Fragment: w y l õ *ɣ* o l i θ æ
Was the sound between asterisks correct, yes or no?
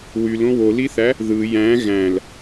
no